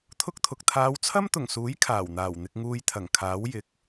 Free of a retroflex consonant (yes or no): yes